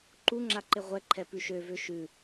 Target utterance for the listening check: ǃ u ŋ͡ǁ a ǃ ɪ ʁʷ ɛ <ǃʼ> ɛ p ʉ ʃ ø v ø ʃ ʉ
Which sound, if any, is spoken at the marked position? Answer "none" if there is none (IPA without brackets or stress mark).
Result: ǃʰ